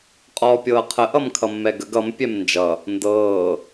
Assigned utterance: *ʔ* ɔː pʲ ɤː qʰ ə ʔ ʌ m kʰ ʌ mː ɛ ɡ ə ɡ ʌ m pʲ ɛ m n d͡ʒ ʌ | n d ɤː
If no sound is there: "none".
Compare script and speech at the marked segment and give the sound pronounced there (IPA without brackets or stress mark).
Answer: qʼ